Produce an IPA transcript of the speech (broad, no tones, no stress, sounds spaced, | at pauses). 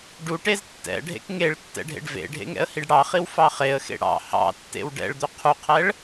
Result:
ɖ u ʈ e z tː ɛ̰ ɖʱ ḛ k ŋ e ɭ tː ɛ̰ ɖʱ ḛ ɖ v ḛ ɖʱ ḛ ŋ ɛ̰ ə̯ h i ɖ ɽ ɑ χ i w f ɑ χ e ə̯ x ḛ ɽ ɑ̰ h ɑ̰ tː ḛ w ɖ ɛ̰ ɭ d̪ ʏ qʰ u qʰ ɛ ɭ